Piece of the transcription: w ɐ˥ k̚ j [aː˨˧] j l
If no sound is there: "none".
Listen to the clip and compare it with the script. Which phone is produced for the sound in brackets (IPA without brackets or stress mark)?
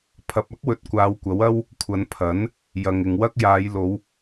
aː˨˧